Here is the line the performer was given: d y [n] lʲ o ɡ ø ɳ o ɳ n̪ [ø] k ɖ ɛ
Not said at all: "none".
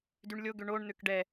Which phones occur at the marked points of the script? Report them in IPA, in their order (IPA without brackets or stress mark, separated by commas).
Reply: ɳ, ø